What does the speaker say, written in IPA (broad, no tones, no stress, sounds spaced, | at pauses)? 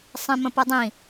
sˤ ĩ m ə̃ p ɯ dˤ ĩ